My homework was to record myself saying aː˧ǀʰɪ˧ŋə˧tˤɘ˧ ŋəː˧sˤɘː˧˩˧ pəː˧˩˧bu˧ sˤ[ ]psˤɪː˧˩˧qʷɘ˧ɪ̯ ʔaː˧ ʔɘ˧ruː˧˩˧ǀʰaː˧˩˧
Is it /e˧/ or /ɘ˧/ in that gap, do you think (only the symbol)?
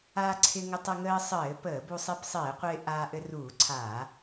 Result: e˧